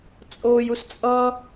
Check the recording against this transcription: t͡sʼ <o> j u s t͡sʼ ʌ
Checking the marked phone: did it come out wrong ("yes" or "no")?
yes